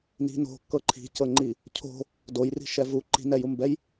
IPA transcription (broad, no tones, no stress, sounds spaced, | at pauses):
n i̤ n o̤ kː ɤ ǃʰ i̤ c ɤ ŋ͡ǃ i | cʰ o̤ | d o j r i̤ ʃ ɛ v u ǃ i̤ n ɛ j u m b ɛ j